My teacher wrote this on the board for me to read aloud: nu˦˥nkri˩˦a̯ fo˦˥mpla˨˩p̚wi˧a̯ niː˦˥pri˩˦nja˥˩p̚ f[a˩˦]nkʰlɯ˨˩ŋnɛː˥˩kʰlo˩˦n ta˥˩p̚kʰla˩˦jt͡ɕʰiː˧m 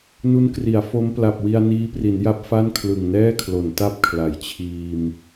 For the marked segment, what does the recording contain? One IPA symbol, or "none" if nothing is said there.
a˥˩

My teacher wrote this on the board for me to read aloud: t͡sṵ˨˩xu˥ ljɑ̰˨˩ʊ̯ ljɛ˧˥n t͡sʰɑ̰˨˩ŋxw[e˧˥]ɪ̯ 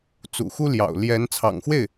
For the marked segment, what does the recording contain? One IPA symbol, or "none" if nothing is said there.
e˥˩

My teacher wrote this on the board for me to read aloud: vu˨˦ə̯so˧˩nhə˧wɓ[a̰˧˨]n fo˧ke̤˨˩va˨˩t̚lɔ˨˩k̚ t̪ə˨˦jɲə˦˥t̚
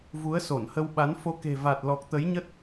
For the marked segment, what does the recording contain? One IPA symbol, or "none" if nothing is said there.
a˨˦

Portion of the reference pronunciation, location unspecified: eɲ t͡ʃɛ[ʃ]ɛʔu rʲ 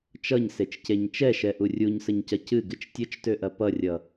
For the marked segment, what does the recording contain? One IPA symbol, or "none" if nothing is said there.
ʃ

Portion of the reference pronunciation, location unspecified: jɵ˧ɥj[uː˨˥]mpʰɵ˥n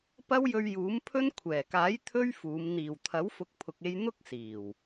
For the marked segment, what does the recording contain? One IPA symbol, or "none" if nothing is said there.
uː˨˥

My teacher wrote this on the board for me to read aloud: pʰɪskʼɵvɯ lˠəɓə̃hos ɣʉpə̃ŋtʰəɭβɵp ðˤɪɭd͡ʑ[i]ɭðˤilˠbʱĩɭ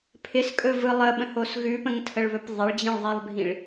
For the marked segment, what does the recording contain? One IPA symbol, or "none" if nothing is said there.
ĩ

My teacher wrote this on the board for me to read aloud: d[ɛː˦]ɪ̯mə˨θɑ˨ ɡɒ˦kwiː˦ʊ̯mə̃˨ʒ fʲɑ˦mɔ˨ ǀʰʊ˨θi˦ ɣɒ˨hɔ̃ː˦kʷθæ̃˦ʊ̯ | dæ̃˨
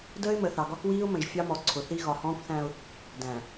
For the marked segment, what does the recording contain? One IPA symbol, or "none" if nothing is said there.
əː˦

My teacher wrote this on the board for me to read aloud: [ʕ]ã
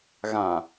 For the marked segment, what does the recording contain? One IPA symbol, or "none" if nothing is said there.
ɣ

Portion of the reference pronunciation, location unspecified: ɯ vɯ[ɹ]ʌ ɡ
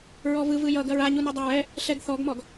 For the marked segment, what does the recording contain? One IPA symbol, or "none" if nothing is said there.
j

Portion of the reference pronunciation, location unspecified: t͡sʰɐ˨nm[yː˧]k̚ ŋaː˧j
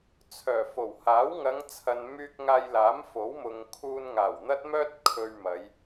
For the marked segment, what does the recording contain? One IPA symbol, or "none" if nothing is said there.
yː˧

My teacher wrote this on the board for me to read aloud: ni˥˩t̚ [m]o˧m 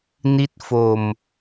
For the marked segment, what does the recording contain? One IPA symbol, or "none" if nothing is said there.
f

